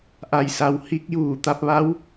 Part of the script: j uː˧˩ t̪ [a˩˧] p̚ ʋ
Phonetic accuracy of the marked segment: incorrect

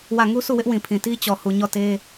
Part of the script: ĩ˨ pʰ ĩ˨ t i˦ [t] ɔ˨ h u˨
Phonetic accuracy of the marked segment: incorrect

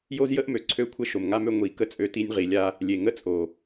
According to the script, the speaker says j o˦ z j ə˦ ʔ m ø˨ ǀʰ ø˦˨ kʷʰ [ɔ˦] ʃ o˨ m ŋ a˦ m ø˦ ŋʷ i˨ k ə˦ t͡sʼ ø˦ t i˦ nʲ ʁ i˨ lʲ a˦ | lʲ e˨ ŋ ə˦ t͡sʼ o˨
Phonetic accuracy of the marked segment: incorrect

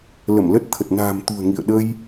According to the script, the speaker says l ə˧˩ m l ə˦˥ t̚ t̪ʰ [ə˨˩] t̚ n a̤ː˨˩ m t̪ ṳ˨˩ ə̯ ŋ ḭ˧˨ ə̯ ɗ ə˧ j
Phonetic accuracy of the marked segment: correct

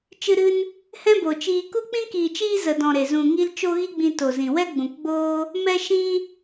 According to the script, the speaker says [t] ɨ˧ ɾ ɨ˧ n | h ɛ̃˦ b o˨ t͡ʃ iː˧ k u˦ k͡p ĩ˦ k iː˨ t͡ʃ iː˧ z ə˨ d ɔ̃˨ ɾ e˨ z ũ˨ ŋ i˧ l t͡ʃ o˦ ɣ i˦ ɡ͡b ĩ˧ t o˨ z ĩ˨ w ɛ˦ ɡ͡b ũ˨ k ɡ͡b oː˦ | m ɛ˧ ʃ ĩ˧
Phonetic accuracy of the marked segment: incorrect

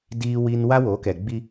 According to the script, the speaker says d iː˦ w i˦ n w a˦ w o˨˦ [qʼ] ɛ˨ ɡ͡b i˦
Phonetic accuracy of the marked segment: incorrect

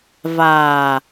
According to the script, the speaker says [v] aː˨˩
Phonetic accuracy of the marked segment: correct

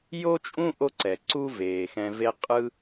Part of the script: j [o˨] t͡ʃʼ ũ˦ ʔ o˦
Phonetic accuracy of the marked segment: incorrect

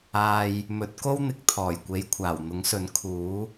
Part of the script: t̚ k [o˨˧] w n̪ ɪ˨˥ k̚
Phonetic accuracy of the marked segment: incorrect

